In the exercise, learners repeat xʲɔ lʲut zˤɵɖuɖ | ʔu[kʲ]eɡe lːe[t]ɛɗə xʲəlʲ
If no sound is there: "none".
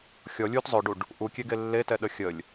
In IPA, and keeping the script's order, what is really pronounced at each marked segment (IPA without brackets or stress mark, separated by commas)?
kʲ, t